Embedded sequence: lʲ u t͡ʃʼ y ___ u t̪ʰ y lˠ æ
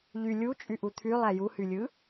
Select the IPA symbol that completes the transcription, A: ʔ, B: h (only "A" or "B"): A